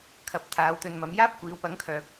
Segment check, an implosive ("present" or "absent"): absent